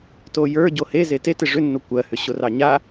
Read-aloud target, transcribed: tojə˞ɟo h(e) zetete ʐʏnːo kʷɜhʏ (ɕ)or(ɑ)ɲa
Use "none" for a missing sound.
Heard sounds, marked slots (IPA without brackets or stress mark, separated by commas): e, ɕ, ɑ